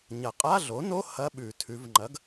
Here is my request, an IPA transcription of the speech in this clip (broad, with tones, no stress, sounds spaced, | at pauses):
ɲ ɐ˨˩ qʼ a˧˥˧ ɮ o˩˥ n o˧˥˧ h ɐ˧˥˧ ɓ ʉ˧˩˧ tʰ ʉ˩˧ v ŋ͡ǃ ɐ˩˥ ɡ